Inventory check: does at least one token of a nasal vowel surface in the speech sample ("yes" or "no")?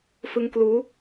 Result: no